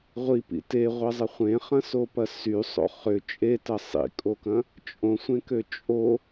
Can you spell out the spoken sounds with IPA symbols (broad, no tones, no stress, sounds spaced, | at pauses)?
ʁʷ i p ḭ t e ʁʷ ɛ zˤ ə χʷ ẽ χ ɐ̃ s o p ɐ s y sˤ o̰ χ ʏ t͡ʃʼ e t ɐ sˤ ḭ kʼ o k ɐ̃ | t͡ʃʼ õ sʷ ẽ k ø t͡ʃʼ o